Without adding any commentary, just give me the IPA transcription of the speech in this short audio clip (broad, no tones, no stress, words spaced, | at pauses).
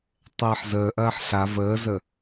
tˤɛːħzəːʔɐːħ ɬa vəːzə